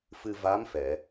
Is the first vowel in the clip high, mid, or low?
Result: high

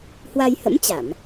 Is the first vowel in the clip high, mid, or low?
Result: low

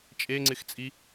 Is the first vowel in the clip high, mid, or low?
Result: mid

